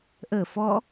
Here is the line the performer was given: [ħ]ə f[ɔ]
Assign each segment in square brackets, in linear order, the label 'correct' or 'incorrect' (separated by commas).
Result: incorrect, correct